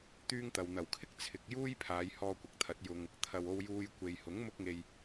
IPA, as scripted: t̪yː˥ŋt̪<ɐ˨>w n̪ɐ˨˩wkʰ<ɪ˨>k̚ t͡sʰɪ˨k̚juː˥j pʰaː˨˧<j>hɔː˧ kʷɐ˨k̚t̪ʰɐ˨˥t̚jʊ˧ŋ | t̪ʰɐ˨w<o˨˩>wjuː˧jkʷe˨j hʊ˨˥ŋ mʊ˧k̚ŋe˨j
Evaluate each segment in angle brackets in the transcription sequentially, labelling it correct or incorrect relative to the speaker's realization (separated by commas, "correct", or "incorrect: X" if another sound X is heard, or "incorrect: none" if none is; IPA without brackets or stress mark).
correct, incorrect: ɪ˥, correct, incorrect: o˧